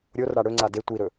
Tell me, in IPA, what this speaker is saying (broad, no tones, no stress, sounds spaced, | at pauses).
ɾʲ o r ɽ a ɽ ɵ ŋ͡ǀ a d e tʷ i ɾ ɵ